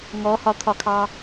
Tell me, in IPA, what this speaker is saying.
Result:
ŋ ɔ h ɒ t̪ʰ ɒ kʰ ɑ

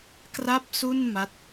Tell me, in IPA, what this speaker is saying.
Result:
k r a˥˩ p̚ s u˥˩ n m a˦˥ t̚

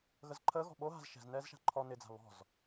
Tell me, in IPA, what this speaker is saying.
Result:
ɣ ə z ǃʰ əː ɣ ɔ̤ ɓ o ɦ a̤ z ʃ ɛ̤ z n ɛː z ʃ a̤ ǃʰ ɔ n ɪ d͡z a̤ β ɔ̤ z

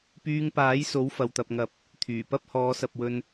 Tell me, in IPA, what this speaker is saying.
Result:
p yː˧ ŋ p aː˨˥ j s o˨˥ w f ɐ˨ w t̪ ɐ˨ p̚ ŋ ɐ˨˥ p̚ | t̪ʰ yː˨˩ p ɐ˥ p̚ h ɔː˨˧ s ɐ˨ p̚ w ɵ˧ n

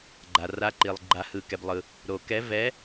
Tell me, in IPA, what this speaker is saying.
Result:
ɡ͡ǃ a˨ r a˧˥ ǃ i˨ lˠ ɡ͡ǃ a˨ h ɯ˨ k ɛ˨ b lˠ ɯ˨ | ɾ o˨ k ɛ˧˥ v ɛ˧˥

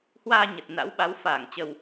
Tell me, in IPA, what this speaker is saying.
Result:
h w aː˧ ɲ ə˨˩ t̚ n a̰˧˥ w ɓ a˨˦ w f aː˧˩ ŋ t͡ɕ ə˨˩ w

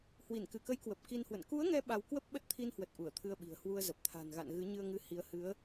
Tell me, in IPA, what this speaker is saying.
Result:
h w i˧˩ n k ɨ˧˩ k ə˨˦ j k w ə˨˩ p̚ k i˧ n h w ə̰˧˨ n k u˨˦ ə̯ ŋ ɛ˨˦ ɓ a˧ w k w ə˦˥ p̚ ɓ ə˦˥ t̚ t̪ʰ i˧ n h w ə˨˩ t̚ ʔ u˧˩ ə̯ t̪ʰ ɨ˧ ə̯ ɓ i̤˨˩ ə̯ h w u˧ ə̯ z ə˨˩ p̚ t̪ʰ a̤˨˩ n ɣ a̰˧˨ n ɣ ɨ˨˦ ɲ ɨ˧ ə̯ ŋ ɨ˨˦ h i˧ ə̯ h ɨ˨˦ ə̯

